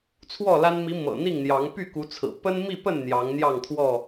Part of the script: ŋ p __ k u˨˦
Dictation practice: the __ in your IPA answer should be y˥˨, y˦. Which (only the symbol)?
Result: y˥˨